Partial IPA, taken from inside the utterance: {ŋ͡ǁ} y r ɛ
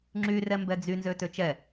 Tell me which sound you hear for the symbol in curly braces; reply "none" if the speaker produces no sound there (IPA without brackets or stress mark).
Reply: ŋ͡ǁ